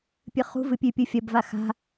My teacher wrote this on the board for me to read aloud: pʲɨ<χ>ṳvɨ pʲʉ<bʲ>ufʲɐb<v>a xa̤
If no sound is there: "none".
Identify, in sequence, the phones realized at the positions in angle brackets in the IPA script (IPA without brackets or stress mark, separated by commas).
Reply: χ, pʲ, v